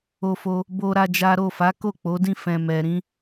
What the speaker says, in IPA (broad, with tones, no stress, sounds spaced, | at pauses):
o˧ f o˧ | b o˦ ɾ a˦ d͡ʒ a˦ ɾ o˦˨ f a˨˦ k o˦˨ k͡p o˨˦ d ĩ˦˨ f ɛ̃˨ m ɛ˨ ɾ ĩ˧